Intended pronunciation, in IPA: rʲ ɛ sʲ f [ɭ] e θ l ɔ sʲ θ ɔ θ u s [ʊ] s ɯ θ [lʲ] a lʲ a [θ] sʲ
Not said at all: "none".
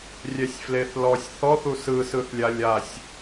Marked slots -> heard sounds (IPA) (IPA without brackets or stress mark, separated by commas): l, ɯ, lʲ, none